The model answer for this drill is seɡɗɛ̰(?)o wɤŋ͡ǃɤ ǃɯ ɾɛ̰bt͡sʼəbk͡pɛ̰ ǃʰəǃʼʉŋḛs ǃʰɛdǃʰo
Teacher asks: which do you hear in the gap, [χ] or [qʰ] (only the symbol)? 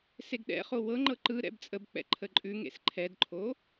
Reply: χ